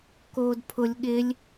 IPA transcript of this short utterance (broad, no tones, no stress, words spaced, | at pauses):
koːdpʰʊlʲ ɠɪlʲ